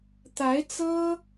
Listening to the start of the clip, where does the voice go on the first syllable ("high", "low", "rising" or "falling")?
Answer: rising